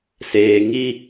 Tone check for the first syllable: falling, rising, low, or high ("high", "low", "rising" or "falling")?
low